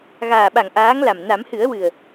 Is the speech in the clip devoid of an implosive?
no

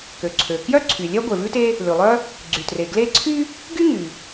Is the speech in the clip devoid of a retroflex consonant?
yes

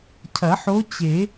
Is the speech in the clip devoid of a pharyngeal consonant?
no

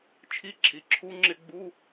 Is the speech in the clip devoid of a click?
no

